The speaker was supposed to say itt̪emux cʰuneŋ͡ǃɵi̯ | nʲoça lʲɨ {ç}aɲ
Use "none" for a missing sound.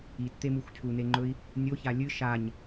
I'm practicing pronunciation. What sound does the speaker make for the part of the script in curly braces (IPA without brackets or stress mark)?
ʃ